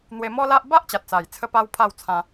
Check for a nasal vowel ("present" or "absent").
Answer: present